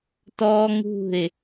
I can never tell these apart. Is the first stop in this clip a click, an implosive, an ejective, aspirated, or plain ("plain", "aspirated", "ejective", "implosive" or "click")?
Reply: plain